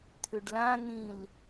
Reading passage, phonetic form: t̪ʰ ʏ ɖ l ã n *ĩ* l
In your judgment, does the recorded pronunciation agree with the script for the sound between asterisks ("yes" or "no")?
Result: yes